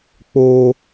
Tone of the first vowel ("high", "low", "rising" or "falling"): high